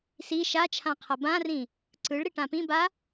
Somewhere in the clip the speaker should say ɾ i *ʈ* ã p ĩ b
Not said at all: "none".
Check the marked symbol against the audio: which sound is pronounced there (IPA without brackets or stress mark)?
ʈ